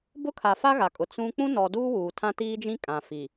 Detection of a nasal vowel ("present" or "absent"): present